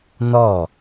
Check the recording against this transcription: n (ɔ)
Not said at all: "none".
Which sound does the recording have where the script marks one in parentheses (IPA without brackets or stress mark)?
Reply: ɔ